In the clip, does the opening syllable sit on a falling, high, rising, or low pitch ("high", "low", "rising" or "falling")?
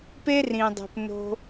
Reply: high